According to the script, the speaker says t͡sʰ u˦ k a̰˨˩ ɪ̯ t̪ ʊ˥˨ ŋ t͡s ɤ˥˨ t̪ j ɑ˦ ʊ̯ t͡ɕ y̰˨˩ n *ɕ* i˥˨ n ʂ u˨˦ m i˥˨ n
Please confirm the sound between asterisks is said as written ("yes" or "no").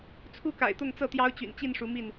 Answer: no